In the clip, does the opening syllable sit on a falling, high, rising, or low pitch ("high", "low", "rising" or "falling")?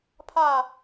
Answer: falling